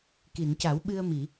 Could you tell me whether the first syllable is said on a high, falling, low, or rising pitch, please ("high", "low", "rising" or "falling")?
low